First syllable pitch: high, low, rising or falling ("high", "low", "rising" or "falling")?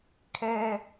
high